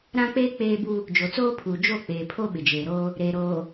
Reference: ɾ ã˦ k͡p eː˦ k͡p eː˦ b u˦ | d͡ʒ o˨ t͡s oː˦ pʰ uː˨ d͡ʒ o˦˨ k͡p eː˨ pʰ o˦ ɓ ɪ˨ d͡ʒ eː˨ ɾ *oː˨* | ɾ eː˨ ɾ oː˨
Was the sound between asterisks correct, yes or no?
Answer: no